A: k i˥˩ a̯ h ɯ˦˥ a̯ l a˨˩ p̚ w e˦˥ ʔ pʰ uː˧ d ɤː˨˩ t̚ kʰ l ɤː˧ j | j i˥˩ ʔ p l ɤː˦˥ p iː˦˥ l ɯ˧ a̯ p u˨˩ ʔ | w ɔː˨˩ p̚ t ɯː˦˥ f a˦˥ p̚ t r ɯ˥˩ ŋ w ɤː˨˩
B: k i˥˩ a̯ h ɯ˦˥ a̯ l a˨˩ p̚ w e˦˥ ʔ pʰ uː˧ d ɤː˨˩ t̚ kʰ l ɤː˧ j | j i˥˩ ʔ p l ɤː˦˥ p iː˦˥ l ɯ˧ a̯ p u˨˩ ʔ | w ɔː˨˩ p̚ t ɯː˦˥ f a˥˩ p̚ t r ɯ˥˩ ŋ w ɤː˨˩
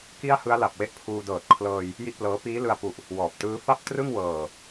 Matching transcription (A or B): B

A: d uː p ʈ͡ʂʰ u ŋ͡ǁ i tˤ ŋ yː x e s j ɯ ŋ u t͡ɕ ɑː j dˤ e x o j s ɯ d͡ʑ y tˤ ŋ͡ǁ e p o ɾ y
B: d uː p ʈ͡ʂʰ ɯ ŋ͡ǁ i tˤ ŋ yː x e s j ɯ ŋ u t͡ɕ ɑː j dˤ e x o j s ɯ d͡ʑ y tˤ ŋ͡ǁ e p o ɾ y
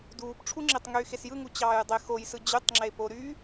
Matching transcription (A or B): A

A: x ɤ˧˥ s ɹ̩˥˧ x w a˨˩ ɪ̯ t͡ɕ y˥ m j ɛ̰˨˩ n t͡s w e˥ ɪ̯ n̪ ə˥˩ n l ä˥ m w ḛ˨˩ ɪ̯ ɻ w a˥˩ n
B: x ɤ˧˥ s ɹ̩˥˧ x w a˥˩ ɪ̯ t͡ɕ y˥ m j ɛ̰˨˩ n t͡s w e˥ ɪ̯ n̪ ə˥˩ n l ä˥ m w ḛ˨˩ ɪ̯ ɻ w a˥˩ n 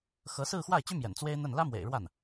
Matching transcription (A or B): B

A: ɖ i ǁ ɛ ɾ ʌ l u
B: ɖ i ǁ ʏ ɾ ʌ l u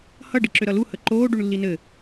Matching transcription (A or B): B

